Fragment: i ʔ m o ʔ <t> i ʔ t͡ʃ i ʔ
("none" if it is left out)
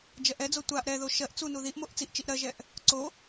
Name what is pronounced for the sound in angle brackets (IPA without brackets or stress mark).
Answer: t͡s